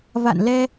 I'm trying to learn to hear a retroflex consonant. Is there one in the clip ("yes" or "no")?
no